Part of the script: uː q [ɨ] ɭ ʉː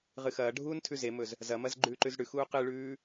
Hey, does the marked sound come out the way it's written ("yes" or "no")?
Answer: yes